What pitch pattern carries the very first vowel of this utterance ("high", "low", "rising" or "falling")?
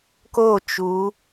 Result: falling